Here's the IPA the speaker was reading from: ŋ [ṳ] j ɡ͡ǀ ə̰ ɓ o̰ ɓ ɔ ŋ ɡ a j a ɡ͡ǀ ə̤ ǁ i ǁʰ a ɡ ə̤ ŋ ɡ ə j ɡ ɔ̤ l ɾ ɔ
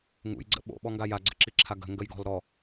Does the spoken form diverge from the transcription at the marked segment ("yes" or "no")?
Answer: yes